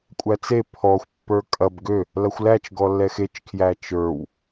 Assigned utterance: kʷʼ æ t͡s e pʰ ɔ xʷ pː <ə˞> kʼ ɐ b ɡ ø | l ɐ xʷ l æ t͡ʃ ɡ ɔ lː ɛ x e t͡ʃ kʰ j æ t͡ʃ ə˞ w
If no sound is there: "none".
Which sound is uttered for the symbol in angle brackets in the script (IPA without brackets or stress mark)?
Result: ə˞